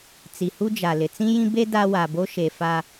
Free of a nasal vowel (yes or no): no